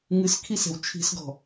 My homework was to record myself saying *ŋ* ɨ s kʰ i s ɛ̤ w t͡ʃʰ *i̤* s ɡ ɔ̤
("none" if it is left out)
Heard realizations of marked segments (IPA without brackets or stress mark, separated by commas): ŋ, i̤